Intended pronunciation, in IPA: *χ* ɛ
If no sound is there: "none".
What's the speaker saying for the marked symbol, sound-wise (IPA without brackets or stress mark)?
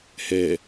h